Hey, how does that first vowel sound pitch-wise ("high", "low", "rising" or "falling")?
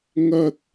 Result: high